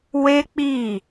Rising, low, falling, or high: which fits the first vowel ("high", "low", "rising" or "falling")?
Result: high